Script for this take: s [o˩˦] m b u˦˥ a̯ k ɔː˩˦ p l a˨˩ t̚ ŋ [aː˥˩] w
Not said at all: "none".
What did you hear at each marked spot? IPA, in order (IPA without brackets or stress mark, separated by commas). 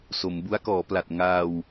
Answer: o˩˦, aː˧